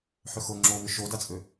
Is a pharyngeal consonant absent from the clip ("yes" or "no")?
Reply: no